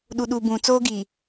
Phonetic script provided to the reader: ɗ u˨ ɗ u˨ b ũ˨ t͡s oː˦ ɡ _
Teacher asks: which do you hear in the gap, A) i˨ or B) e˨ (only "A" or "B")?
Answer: A